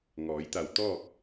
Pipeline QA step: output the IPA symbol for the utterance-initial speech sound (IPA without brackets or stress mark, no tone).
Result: ŋ